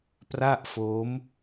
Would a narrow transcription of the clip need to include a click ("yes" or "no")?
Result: no